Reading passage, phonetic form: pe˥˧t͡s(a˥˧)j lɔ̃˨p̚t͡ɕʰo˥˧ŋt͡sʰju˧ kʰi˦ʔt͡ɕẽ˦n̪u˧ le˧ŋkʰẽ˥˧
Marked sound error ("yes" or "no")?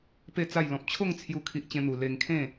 no